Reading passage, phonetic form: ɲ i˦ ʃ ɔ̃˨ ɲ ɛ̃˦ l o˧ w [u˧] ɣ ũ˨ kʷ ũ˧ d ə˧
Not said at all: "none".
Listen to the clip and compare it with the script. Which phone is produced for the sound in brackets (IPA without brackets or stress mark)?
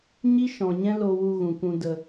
u˧